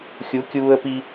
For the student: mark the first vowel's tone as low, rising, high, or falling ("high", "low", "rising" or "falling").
rising